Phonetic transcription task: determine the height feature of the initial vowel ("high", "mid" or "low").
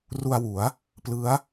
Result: high